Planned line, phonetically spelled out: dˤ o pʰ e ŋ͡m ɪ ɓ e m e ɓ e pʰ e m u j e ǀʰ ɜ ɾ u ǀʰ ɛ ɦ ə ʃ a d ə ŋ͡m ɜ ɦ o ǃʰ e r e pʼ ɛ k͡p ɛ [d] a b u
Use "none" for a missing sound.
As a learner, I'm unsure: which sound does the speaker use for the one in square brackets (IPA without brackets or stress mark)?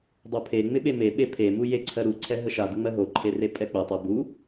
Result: tˤ